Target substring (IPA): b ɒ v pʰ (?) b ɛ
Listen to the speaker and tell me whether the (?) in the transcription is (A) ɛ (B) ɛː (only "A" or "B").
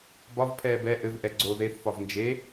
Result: B